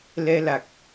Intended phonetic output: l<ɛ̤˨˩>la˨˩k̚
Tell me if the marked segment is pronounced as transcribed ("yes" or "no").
no